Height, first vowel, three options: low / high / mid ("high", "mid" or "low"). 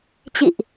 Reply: high